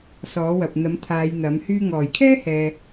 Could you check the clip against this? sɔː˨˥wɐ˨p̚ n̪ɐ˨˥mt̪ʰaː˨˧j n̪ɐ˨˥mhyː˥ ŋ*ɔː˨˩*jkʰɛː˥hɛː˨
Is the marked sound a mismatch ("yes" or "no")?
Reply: no